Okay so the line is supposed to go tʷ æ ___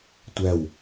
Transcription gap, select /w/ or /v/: w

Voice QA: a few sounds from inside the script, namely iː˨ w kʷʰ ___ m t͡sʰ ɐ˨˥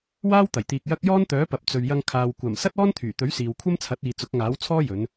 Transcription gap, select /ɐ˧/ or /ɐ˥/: ɐ˥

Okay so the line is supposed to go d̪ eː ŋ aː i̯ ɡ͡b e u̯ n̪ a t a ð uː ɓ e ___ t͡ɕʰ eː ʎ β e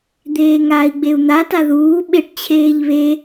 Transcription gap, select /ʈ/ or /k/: ʈ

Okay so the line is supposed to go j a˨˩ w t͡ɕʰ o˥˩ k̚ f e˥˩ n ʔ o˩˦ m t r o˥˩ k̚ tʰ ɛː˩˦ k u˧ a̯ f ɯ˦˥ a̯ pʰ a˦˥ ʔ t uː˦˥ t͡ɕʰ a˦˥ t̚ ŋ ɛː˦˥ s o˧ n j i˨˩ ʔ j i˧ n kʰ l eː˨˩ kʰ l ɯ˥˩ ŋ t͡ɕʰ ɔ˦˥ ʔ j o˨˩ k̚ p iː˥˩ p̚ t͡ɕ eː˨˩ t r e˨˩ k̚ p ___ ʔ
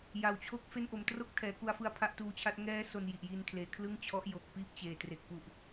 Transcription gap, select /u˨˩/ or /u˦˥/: u˨˩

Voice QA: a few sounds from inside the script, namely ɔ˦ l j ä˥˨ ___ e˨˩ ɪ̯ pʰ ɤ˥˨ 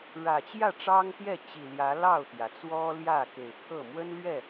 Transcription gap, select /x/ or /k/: k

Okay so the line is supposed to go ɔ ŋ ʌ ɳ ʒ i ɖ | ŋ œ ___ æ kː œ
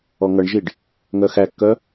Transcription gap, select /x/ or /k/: x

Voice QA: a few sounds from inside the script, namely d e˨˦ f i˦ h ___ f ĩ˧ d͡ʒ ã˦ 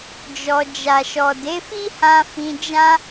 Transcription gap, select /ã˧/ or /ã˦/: ã˧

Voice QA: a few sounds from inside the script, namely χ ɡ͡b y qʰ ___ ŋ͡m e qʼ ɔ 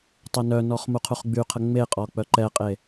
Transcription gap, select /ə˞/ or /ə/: ə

